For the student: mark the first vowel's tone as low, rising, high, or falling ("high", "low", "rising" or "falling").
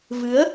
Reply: rising